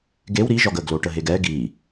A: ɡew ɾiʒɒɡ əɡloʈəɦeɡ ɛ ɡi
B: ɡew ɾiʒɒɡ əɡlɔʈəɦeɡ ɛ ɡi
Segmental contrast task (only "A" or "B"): A